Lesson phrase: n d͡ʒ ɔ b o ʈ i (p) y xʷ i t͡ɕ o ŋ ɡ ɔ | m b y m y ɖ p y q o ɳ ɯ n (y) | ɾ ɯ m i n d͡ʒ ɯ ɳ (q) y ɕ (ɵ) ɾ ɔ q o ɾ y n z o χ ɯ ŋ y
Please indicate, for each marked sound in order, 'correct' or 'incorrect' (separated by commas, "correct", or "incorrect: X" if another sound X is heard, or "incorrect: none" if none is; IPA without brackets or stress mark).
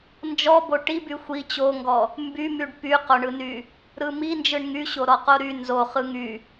incorrect: b, correct, incorrect: ŋ, incorrect: o